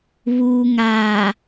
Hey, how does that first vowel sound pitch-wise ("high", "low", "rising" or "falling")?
low